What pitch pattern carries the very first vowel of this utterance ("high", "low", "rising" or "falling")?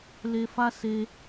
high